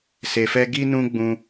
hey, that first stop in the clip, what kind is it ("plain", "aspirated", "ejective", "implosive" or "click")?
plain